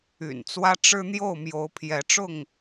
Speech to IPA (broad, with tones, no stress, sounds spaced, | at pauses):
y̰˨˩ n t͡s w ä˦ ʈ͡ʂ ɻ̩˦ n̪ j o˥˨ ʊ̯ m j o˨˦ ʊ̯ pʰ j ɛ˨˦ ʈ͡ʂ ʊ˥˨ ŋ